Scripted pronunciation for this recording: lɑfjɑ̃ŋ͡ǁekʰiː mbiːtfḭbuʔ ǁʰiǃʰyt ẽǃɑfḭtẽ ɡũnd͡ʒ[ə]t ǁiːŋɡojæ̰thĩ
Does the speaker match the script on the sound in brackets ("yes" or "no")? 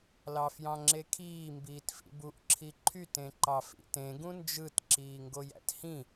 no